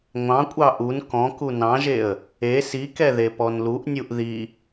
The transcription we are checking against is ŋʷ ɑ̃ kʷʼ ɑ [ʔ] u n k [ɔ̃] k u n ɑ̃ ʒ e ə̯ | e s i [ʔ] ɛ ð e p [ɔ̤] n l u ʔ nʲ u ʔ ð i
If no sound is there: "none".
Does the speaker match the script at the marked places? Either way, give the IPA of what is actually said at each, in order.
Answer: ʔ, ɔ̃, k, ɔ

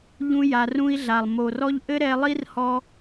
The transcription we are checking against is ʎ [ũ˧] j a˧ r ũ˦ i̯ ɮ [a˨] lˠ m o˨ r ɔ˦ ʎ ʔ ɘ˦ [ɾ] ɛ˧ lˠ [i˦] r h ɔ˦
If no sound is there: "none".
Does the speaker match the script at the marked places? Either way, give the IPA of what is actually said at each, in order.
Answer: ũ˦, a˨, ɾ, i˦

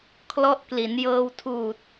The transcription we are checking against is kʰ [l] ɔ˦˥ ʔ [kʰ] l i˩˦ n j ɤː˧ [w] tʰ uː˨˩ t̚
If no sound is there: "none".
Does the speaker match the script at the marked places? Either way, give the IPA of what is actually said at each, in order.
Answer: l, k, w

